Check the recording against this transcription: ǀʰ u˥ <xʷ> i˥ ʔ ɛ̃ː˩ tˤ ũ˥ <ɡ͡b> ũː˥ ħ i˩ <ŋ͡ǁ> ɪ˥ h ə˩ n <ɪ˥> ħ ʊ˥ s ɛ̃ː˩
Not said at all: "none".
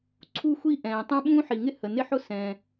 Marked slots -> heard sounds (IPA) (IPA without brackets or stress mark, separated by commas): xʷ, ɓ, ŋ, ɪ˥